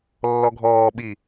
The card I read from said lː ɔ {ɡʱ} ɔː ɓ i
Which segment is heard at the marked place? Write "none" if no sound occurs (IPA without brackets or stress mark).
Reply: ɡʱ